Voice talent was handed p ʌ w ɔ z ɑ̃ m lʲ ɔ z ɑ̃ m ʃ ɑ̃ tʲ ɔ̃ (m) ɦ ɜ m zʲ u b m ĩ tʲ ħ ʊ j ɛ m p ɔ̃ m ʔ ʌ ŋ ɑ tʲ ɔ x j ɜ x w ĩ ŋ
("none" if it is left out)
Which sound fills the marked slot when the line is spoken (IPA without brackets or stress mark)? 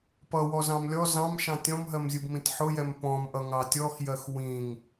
m